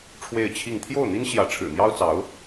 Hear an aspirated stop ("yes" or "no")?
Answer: yes